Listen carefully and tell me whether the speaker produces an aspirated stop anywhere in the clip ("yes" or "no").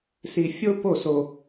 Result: no